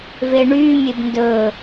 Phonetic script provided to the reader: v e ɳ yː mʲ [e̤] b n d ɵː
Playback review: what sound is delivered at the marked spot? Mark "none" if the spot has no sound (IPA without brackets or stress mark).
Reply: e